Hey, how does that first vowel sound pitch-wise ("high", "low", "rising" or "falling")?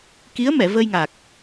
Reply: rising